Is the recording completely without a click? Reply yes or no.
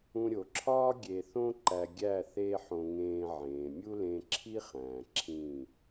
no